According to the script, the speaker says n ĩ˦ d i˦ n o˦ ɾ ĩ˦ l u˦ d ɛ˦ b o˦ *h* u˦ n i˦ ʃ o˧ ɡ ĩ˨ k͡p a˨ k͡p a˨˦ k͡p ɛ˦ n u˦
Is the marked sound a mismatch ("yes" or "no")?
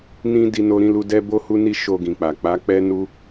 no